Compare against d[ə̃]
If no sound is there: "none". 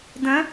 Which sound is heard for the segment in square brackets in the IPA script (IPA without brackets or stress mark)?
ə̃